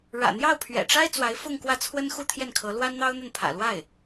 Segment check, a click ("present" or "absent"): absent